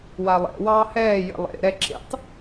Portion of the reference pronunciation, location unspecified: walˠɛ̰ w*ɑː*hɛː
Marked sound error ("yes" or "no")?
no